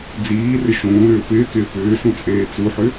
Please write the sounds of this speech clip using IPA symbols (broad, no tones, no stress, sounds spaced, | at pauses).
d͡z iː r ɪ ʃ ũː ɾ ʏː p ɪː k ɪː p ʏː s ũ t͡sʼ eː t͡s u ħ ʏ